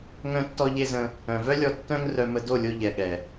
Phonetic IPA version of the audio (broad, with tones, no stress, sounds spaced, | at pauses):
ŋ œ̃˧ tː ɔ˧ ʎ e˧ z ə̃˧ | œ̃˨ v œ˦ lʲ ɔ˧ tː œ̃˦ ŋ r œ˧ m ə˧ d o˦˨ lʲ o˧ ʎ ɛ˨ ɠ ɛ˨